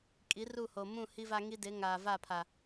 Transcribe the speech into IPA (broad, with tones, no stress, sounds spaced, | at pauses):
kʼ i˨˦ r u˦˨ h o˨ m ũ˦˨ h i˦ v a˦ ŋ i˦ d ɪ˨˦ ŋ aː˨ v a˦˨ pʰ a˨